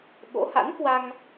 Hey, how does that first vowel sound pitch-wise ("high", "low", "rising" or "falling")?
rising